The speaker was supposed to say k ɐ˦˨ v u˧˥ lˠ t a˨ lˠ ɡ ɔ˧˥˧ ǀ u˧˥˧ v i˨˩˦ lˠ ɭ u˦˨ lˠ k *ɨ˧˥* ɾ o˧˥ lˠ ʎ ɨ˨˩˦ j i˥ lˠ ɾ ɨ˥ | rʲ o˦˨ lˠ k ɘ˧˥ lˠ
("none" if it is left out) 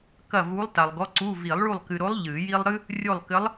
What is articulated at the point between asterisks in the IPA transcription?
ɨ˨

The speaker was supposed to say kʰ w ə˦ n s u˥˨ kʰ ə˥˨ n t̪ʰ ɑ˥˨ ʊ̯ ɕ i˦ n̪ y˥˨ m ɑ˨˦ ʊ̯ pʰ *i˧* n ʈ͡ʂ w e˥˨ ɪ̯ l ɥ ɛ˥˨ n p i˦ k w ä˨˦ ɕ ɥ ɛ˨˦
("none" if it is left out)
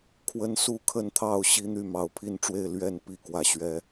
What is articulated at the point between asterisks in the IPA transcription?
i˥˨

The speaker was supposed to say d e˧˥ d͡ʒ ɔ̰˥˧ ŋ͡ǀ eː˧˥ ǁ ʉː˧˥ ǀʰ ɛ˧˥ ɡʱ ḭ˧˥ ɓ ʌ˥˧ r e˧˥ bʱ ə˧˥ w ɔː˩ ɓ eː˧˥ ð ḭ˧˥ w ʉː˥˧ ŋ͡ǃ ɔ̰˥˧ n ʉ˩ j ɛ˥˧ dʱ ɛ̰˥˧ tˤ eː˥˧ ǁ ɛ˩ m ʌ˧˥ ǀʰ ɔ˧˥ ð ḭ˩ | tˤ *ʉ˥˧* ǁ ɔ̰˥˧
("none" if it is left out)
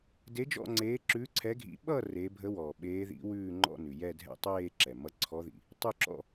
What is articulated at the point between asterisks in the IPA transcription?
ʉ˥˧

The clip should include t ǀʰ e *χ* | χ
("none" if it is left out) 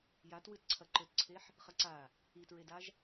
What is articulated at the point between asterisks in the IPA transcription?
ħ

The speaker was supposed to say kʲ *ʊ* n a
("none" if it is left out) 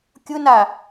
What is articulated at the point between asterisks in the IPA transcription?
ʊ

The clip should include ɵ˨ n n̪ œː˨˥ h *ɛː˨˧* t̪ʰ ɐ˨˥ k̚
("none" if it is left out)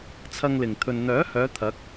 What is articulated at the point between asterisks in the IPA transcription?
œː˨˧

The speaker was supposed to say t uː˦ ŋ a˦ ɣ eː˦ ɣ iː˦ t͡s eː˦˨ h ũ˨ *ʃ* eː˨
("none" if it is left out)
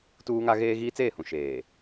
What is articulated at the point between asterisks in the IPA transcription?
ʃ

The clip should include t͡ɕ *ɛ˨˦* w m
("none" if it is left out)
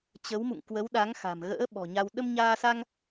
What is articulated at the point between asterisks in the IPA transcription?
ə˨˦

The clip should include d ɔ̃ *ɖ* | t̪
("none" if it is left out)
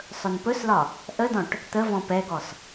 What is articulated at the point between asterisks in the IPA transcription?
ʈ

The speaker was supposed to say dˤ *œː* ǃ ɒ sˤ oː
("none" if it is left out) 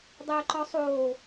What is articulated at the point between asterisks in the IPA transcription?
əː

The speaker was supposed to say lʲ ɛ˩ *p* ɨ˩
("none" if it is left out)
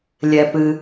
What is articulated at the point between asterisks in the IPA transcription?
p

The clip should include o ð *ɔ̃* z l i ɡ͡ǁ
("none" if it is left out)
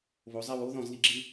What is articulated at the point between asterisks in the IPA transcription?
ɔ̃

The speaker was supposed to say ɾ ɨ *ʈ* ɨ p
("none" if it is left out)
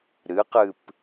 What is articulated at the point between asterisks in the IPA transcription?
q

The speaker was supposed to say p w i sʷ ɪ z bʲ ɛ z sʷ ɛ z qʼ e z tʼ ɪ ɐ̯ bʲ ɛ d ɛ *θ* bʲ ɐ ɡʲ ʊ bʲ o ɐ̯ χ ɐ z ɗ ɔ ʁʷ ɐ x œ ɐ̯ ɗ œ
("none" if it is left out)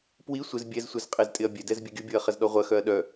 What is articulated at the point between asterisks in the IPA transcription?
z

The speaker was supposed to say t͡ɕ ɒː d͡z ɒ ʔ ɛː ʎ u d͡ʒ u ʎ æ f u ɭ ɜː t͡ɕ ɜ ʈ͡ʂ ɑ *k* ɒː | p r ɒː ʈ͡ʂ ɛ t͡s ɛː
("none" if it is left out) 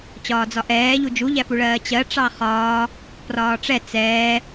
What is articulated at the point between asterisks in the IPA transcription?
χ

